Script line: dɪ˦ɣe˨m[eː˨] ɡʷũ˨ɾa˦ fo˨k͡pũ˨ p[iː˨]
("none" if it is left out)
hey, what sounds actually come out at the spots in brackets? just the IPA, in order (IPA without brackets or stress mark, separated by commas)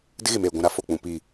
eː˨, iː˨